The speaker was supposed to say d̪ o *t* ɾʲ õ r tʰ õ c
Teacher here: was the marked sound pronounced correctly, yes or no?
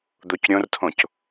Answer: no